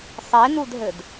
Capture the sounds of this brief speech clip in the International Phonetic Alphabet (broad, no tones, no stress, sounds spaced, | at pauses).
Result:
sˤ e n u d ɦ ɘ d